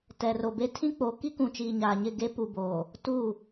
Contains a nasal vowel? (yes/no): yes